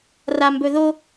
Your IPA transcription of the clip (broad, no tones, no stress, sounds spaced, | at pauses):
r a m b ɵ ð o